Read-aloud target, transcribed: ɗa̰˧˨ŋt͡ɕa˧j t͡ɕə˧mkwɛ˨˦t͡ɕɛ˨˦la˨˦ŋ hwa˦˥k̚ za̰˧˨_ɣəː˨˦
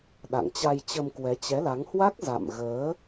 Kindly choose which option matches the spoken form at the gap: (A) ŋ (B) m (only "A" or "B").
B